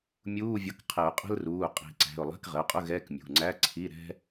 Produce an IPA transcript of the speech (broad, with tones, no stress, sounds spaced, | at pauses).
mʲ uː˧˥˧ vʲ ʌ˨˥ k qʰ ɪ˨˩˦ ʊ̯ qʼ ə̤˥ l r uː˩˧˩ qʼ i̤˨˩˦ ǀ æ̤˩˧˩ ʊ̯ lˠ ɛ̤˧˥˧ k ʁ ə˩˧˩ ʊ̯ qʼ ʊ˧˥˧ ɣ ɛ˧˥˧ k mʲ ṳ˩˧˩ ŋ͡ǀ æ˧˥˧ ǀʰ i˧˥˧ ɾ ɛ̤˥